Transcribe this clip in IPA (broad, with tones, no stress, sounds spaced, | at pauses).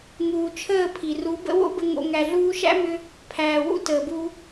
ŋ uː˨ t͡ʃʰ əː˦˨ pʰ i˨ r u˨˦ b ə̰˦ w o̰˦ b ə˧ ŋ o̰˧ ŋ æ˨ ɮ uː˧ ʃ æ̰˦ m ʏ˧ | pʰ æː˨ w ṵ˦ t əː˨ b u˧